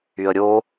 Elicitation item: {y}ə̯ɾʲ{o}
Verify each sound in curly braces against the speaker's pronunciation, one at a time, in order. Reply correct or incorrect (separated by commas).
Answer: correct, correct